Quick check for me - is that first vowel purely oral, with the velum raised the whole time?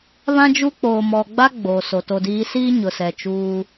no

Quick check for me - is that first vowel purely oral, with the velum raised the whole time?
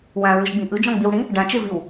no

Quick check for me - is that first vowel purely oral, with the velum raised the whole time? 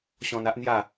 no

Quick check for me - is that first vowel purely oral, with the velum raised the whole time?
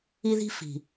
yes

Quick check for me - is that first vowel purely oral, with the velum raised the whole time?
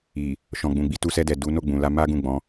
yes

